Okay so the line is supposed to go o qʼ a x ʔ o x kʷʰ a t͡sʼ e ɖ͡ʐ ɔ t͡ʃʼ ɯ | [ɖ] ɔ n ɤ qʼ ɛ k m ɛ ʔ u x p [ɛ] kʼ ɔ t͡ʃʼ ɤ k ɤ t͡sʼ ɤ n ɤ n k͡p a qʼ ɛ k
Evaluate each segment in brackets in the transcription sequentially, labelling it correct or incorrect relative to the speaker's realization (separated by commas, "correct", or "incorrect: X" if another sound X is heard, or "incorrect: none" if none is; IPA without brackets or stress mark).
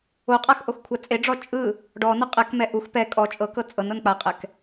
correct, correct